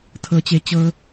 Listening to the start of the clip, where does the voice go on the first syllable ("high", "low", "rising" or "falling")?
high